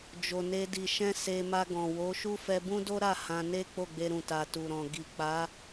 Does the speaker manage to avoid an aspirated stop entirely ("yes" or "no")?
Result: yes